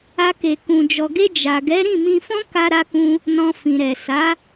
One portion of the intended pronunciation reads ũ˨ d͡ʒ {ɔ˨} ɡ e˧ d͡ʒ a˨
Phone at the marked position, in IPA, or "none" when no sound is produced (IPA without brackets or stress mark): ɔ˨